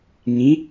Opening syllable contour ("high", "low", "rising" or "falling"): rising